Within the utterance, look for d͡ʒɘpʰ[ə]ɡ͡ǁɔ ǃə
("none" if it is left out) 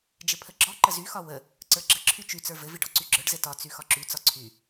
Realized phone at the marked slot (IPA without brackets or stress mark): ə